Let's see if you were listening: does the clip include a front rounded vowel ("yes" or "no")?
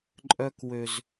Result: yes